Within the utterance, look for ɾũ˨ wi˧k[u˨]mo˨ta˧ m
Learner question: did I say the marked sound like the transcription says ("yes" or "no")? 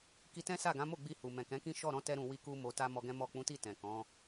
no